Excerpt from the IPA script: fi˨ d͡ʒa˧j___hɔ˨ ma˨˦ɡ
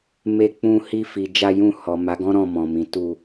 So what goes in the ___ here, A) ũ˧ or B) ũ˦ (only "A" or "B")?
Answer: A